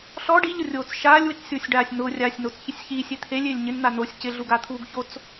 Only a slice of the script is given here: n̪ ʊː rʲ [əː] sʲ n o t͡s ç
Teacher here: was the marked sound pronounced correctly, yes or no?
no